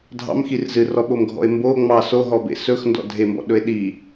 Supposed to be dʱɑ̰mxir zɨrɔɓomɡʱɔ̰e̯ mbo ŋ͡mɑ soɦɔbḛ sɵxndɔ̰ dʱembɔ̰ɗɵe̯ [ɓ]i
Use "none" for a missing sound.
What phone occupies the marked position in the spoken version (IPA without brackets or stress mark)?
ɗ